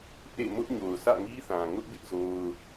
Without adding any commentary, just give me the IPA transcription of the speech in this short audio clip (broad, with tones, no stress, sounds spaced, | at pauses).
ʔ ḛ˦˨ m ʊ˦ ʔ ɲ o˨ ʊ̯ s ä̰˦˨ ŋ i˦ θ ã˨ ŋ ʊ˦ ʔ b ɪ˦ ʔ z o˦ ʊ̯